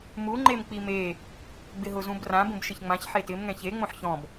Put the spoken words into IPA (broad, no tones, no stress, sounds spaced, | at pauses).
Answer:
m u ŋ͡ǃ e m k͡p i m e | ɡ͡b ɪ ɦ ʊ z ũ b r ã b ũ b ʃ ɪ ç ŋ͡m ã ç ħ e t ɪ m ŋ ɛ̃ ç e ŋ͡m õ ħ ç ɔ̃ b